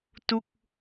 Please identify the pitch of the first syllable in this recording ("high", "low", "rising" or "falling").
falling